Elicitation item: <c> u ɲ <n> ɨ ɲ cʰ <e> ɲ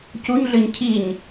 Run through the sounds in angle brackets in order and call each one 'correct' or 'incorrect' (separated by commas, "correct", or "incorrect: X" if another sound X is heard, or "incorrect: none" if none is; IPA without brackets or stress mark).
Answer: correct, incorrect: ɮ, incorrect: i